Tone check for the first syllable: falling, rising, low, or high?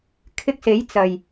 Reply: high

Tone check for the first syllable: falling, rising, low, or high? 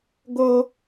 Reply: high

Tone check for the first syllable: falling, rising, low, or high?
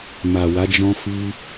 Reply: low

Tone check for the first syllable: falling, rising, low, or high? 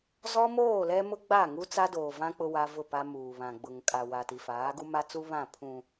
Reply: high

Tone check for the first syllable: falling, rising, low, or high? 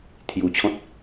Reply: low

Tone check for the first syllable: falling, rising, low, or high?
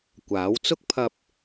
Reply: rising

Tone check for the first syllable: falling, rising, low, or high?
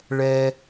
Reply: high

